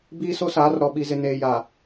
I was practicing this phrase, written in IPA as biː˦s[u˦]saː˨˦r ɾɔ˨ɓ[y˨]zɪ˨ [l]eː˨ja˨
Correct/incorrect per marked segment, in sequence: incorrect: o˦, incorrect: i˨, incorrect: n

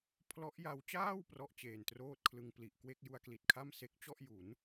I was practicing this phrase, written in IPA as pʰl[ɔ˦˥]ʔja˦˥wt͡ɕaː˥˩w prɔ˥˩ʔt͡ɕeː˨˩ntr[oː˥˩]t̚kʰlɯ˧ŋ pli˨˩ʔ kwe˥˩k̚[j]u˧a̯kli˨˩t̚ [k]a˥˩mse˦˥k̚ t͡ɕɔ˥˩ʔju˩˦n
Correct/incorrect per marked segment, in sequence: correct, correct, correct, incorrect: kʰ

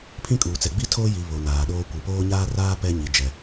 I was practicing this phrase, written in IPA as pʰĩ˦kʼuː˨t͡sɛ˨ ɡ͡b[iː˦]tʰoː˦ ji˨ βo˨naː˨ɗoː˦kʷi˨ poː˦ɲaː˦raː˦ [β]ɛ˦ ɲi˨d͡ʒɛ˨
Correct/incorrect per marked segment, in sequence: incorrect: i˦, incorrect: p

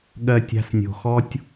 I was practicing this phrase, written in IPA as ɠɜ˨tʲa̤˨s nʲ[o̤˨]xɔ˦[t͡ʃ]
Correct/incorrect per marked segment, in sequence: correct, incorrect: tʲ

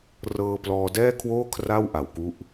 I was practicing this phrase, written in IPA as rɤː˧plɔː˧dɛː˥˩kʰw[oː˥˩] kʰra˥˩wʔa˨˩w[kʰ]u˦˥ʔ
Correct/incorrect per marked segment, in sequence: correct, incorrect: k

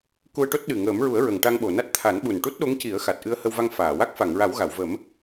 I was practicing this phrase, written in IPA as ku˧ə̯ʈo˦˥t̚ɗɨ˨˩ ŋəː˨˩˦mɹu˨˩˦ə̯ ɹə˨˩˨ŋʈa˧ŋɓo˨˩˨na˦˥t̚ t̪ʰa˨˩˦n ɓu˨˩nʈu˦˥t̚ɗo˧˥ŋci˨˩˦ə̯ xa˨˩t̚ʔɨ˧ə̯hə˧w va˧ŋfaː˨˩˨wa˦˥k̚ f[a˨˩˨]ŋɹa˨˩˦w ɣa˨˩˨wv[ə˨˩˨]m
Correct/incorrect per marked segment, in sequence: correct, incorrect: ə˨˩˦

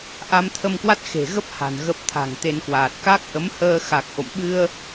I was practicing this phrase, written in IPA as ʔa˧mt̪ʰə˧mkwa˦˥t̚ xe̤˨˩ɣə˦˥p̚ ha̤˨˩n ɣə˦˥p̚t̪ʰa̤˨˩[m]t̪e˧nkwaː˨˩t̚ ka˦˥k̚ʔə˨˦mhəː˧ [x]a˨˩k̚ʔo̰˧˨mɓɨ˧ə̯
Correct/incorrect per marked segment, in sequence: incorrect: ŋ, correct

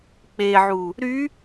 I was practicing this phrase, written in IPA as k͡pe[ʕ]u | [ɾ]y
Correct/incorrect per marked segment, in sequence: correct, correct

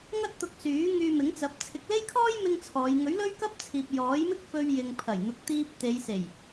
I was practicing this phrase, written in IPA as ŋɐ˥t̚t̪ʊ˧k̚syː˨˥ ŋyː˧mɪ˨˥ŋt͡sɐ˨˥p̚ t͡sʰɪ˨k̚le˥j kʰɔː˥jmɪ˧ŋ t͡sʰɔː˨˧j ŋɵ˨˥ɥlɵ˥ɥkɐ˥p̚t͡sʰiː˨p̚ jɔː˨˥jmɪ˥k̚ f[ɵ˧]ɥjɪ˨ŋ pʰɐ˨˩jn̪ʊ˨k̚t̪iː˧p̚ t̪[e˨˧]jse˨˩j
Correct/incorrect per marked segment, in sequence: correct, correct

